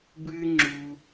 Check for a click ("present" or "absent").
present